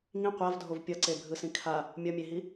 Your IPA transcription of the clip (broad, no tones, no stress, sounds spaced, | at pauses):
ŋ ĩ qʷ a v dʱ o v pʲ ʌ ǀ e bʱ ɯ s ĩ kʰ a | mʲ ʌ mʲ e ɦ i